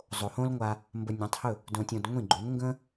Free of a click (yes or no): no